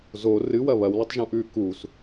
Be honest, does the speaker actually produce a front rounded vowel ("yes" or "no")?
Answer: no